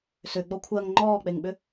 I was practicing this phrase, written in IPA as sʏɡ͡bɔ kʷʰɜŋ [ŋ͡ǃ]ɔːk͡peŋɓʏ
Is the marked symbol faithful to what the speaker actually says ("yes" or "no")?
yes